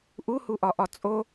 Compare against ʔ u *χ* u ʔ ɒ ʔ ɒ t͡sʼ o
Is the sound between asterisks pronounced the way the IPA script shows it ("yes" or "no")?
no